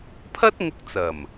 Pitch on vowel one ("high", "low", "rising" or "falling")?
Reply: high